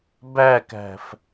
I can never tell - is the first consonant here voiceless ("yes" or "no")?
no